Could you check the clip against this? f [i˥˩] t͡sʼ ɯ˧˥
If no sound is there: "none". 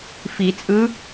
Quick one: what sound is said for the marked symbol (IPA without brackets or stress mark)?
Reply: i˨˩˦